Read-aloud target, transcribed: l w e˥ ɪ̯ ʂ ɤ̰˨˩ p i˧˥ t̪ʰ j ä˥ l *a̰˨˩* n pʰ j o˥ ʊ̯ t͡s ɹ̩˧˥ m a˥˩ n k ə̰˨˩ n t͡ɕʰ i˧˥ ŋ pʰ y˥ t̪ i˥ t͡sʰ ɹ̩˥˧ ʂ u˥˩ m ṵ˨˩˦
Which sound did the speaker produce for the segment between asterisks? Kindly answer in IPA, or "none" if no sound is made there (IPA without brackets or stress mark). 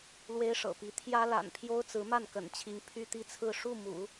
a̰˨˩